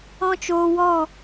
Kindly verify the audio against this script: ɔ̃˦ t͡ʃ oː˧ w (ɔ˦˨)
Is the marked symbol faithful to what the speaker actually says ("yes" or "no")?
yes